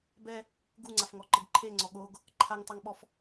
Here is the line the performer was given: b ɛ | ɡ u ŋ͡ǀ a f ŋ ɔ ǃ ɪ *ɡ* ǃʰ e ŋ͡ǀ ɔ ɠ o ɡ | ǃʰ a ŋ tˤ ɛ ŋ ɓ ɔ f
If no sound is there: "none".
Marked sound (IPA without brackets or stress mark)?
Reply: ɡ